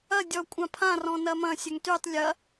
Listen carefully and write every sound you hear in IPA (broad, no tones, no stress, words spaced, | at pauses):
ɐ dʲɔ kʷʼãpʰãrɔ̃ nɐmɐ̃ sʲœŋtytˤ lʲɐ